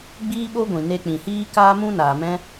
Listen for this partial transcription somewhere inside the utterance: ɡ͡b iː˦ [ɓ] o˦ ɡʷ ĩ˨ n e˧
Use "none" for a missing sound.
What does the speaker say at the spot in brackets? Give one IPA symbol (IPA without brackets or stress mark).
ɓ